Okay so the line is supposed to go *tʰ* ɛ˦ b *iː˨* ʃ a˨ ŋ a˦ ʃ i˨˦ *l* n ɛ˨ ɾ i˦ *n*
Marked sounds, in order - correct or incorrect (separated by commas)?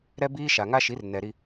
incorrect, incorrect, incorrect, incorrect